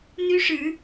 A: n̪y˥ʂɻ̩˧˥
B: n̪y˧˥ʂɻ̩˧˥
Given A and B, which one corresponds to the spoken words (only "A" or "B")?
A